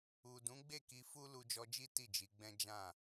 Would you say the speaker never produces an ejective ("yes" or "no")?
yes